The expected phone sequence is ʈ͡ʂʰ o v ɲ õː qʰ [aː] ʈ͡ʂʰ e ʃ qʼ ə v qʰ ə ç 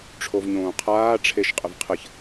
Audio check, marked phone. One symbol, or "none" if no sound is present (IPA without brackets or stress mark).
aː